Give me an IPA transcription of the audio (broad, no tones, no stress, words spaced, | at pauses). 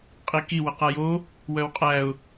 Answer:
qʼiki wʌqajo | wœwqʼæʊ̯